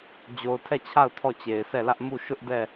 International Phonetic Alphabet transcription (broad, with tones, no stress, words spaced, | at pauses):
d͡ʑo˨ʊ̯tʰɛ˦˨t͡ɕʰa˦˨ʊ̯ tʰɔ˦˨t͡ɕe˨ɪ̯sɛ˦˨lä˦ʔ mu˦˨ ʃʊ˦ʔdɛ˦˨